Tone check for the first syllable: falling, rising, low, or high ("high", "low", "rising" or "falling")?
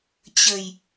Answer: low